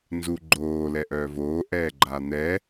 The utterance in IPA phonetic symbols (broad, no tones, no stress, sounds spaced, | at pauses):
n z u ɡ͡ǃ oː l ɛ ʔ œː v oː ʔ ɛː ɡ͡ǃ a n̪ ɛ